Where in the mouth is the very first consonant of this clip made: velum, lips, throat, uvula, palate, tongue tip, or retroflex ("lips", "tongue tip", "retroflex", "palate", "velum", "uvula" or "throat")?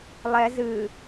tongue tip